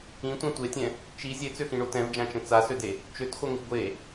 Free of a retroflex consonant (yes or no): no